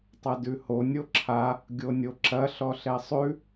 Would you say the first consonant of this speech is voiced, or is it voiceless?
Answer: voiceless